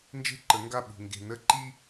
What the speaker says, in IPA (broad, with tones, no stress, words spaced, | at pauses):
nd͡ʒe̤˦ǃə˨˦ŋɡa˦˨ɓṳ˨ ŋɡe̤˨nə˦ ǃi˦